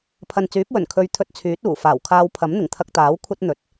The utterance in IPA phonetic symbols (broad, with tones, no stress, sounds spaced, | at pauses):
pʰ ɐ˨ n t͡s yː˨˥ p̚ w ɵ˨˩ n kʰ ɵ˧ ɥ t̪ʰ ɵ˧ t̚ t͡sʰ yː˨˥ t̚ uː˨˩ f aː˨˩ w kʰ aː˧ w pʰ ɐ˨˥ m n̪ ɪ˨˩ ŋ t̪ʰ ɐ˧ k̚ t̪ aː˨˥ w kʷʰ ɐ˥ t̚ n̪ ɵ˨˥ t̚